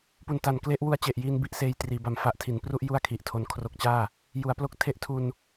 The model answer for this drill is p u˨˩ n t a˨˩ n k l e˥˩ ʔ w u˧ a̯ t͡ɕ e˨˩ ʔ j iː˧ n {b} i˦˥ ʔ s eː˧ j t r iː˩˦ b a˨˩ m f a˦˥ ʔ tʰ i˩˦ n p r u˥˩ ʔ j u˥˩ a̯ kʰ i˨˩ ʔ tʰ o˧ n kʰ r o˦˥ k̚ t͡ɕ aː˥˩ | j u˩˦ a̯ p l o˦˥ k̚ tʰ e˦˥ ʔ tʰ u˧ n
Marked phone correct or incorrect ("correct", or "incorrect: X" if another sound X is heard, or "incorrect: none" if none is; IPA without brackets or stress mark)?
correct